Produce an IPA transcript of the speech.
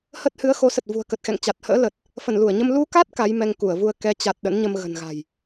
h ə˦˥ t̚ h ɨ˨˦ ə̯ x o˨˦ s ə˨˩ t̚ v ṳ˨˩ ə̯ k ə˨˩ t̚ x ɛ̰˧˨ ŋ t͡ɕ a˨˩ t̚ h ə̰ː˧˥ l ə˨˩ t̚ | f ə˧˩ n l u˧˩ ə̯ ɲ ə˧ m l u˧ k a˦˥ t̚ k a˨˦ j m ɛ˧ ŋ k u˧˩ ə̯ v u˧ ə̯ k ɛ˨˦ t͡ɕ a˨˩ t̚ ɗ ə̰˧˥ n ɲ ə˧ m ɣ ə̤˨˩ n ɣ a̤˨˩ j

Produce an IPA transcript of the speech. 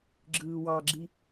ɡ͡ǁ ɯː w ɑ ɡ͡ǁ i

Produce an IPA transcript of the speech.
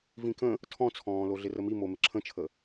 v ĩ k ə̃ | tʰ ɔ̃ t͡sʰ ɔ̃ː l o ɮ ɪ r ə m i m o m ɪ ǁʰ ə̃ t͡ʃʰ ə

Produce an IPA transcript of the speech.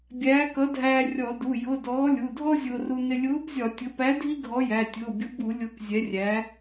bʲ æː˨˥ k ʌ˨˥ dʱ æː˧ rʲ ɔ˧˩˧ d u˩˧˩ j ʊ˩˧˩ d ɔː˨˥ lʲ u˩˧˩ dʱ ɔ˥ zʲ ʊː˧ r u˧ n ɪ˧ lʲ ʊː˨˥ b zʲ ɒ˧˩˧ tʲ ʊ˩˧˩ p æ˨˥ dʱ i˥ ɡʱ ɔ˨˥ j æ˩˧˩ tʲ ʊː˩˧˩ bʲ ʊ˨˥ b u˧˩˧ lʲ ʊː˧ k zʲ ɛ˨˥ rʲ æ˨˥

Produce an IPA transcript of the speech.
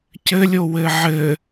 c ɘ lʲ o w ɘ ʕ ɘ

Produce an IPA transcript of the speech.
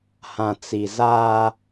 h ã˨ t͡s i˨ z aː˦

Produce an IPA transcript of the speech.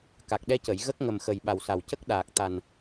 k a˨˩ k̚ ɗ ɛ˧ c ə˨˩˨ j ɣ ə˦˥ k̚ ŋ ə˨˩ m x ə˨˩ j ɓ a˨˩ w s a˨˩ w c ə˦˥ k̚ ɗ aː˨˩ k̚ t̪ a˨˩ n

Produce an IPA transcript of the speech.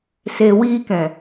s e˨ w i˧ k ɛ̃˨

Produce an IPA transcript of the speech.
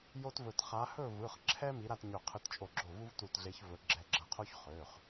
j o˦ t v ɵ˧˩ t χ a˨˦ h ɵ˥˨ v ɯ˩˧˩ χ ǁʰ ɛ˦ m i˨˦ ɾ a˥˨ t ɲ ɵ˧˩ qʰ ɯ˨˦ t t͡ʃʼ o˧˩ ɡ͡ǁ o˧˩ v u˦ v t u˧˩ t ɮ e˨˦ ç v ɵ˨˦ ɡ͡ǁ ɛ˧˩ ɡ͡ǁ ʌ˧˩ qʰ o˦ ç χ ø˩˧˩ χ

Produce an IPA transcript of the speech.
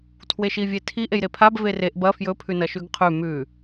tʰ w e ʃ i vʲ e tʰ i ʔ e j ɾ e pʰ a b v e r e ʔ b ɐ f j ɵ pʰ ʉ n ɐ ʃ ʉ ɡ qʰ ʉ m ʉ

